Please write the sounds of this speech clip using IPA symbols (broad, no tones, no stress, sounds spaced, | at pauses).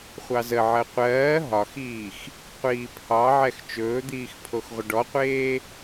χʷ ɑ z ə ʕ ɜ qʷ ɜː ɦ ɒ x iː x | qʷ iː pʰ ɑ ʕ ɛ x t͡ʃ ɵː d̪ iː x pʰ o x ʁʷ ə ɖ ɔ qʷ eː